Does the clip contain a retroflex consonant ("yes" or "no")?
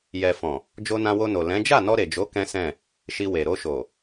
no